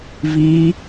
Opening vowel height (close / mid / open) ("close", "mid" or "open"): close